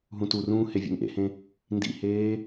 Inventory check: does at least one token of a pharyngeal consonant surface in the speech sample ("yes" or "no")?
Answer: no